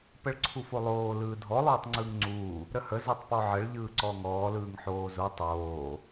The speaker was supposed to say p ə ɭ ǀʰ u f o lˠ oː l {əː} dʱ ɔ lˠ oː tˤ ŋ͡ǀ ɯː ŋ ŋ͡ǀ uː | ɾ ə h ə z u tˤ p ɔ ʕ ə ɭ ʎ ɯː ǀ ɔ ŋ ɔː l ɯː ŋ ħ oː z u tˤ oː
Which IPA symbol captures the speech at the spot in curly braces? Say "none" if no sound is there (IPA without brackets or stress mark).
ɯː